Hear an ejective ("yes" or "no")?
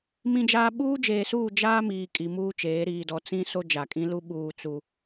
yes